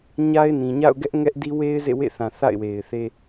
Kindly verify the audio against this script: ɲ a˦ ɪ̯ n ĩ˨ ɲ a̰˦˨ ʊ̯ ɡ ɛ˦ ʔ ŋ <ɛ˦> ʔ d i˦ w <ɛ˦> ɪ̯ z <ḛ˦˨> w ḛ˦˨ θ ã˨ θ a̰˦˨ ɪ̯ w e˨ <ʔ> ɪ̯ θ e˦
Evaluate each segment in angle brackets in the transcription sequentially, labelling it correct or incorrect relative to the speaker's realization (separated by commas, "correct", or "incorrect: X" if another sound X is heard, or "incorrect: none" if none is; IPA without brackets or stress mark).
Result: correct, incorrect: e˦, correct, incorrect: none